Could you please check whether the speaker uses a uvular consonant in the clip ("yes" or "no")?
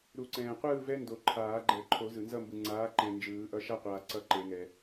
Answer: yes